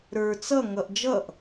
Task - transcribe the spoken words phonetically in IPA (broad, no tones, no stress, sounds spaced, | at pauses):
ɾ ə˞ t͡s ʌ ŋ ʌ ʔ d͡ʒ ʌ ʔ